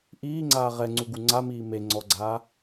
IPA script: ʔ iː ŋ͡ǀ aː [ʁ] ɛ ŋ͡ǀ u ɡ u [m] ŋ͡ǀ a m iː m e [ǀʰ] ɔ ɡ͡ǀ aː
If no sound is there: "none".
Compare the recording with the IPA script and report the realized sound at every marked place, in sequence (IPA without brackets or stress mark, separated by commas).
ʁ, none, ŋ͡ǀ